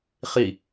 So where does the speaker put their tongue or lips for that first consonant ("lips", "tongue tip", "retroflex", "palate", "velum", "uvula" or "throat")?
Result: uvula